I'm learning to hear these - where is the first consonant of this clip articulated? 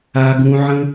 velum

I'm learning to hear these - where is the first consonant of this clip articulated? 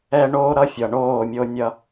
retroflex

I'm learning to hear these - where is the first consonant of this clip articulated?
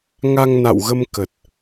velum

